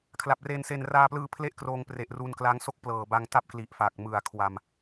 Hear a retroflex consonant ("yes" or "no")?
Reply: no